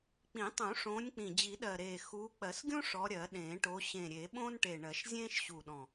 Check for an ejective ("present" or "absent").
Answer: absent